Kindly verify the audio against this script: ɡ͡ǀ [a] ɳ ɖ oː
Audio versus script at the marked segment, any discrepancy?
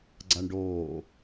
no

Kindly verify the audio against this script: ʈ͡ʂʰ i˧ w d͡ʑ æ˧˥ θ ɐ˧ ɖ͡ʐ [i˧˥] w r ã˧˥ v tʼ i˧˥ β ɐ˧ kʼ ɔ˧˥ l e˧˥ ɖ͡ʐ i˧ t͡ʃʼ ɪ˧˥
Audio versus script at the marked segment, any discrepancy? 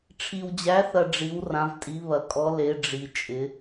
no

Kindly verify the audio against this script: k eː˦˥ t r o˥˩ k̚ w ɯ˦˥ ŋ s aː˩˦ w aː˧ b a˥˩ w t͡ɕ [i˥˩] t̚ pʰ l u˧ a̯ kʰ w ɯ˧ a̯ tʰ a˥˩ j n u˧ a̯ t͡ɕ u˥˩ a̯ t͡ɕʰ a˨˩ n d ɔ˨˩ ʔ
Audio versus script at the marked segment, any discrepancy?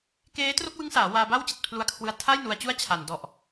yes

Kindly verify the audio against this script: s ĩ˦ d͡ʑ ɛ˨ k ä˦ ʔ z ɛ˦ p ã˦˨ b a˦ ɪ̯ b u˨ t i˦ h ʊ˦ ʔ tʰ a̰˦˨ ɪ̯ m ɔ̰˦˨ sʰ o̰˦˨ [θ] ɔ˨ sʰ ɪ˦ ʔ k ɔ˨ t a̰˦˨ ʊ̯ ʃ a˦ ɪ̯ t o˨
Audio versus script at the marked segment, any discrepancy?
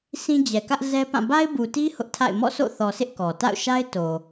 no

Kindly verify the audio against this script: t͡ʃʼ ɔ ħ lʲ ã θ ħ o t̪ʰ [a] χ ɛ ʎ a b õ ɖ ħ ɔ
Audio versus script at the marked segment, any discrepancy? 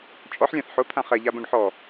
yes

